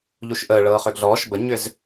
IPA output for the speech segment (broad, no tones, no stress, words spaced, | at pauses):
ʎuʃʔəː ɭɤːχʏɡɮɔːʃ bəɲʏz